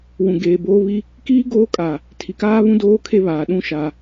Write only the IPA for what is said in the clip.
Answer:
wũ˨ ɡeː˨boː˦βi˦ | kiː˦ ɡoː˦kʼa˨ | tʰi˨kaː˦βũ˦ doː˦kʰe˦βaː˨ ɗũ˦ ʃa˦

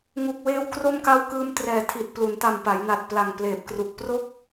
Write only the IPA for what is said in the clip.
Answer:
ŋu˨˩k̚weː˧w kro˥˩mka˥˩w kɯː˧mtrɛː˨˩tʰi˨˩t̚ plu˩˦nta˨˩mpa˩˦jna˨˩t̚ pla˨˩ŋpleː˨˩p̚kru˨˩k̚ pro˥˩k̚

